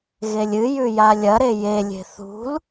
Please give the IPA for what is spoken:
ɣ e lʲ ɨ j ʉ j a lʲ ɐ ɾ e j e lʲ e̤ θ ṳ l

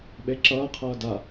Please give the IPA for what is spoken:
ɓ e ǁ ʌː qʰ ʌː d a

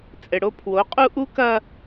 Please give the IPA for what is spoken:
t͡sʼ ɘ˨ ɽ o˦ pʰ w o˨˦ qʼ u˦ ʔ u˦ k ɐ˦

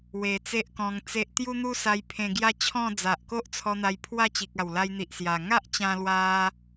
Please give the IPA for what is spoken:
w e˨˩ t͡s e˦ ʔ k ɔ̃˧ ŋ t͡s e˦ ʔ t̪ j u˦ n̪ u˦ s a˧ j pʰ ẽ˧ ɡ j a˦ t͡ɕʰ ɔ̃˥˧ d͡z a˨ ʔ k o˦ ʔ t͡sʰ ɔ˧ n̪ a˧ j pʰ w a˥˧ t͡ɕ i˨ k̚ a˨˩ w l a˧ j n̪ i˨ ʔ s j a˨˩ ŋ a˦ ʔ t͡ɕ ã˧ l w a˧

